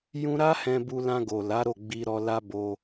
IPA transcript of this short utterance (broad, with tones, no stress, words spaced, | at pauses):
jũ˧ɾa˦ hɛ̃˧bu˧lã˧ɡo˨ la˨˦ɾo˦˨ɡ͡bi˧ ɾɔ˧ la˦bo˧